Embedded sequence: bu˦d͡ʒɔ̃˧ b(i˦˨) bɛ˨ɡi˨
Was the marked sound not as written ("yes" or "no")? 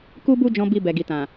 yes